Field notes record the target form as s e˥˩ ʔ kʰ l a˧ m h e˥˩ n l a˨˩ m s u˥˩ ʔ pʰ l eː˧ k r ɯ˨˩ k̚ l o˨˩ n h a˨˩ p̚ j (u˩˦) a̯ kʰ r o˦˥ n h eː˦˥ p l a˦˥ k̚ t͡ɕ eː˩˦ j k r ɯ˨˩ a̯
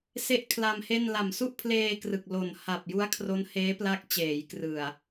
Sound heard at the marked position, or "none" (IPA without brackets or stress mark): u˦˥